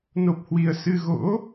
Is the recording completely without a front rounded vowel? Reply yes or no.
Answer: yes